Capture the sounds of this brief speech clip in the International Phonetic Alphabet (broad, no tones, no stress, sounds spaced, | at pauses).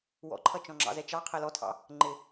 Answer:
w ɔ̰ ǃʰ ʌ t͡ʃ ɔ̃ ŋ͡ǁ ɑ̰ z ɛ t͡ʃ ɑ qʰ ɛ l ɔ tʰ ɑ̰ | ŋ͡ǃ ɪ